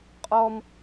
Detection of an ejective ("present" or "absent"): present